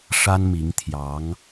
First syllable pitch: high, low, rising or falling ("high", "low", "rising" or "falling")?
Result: high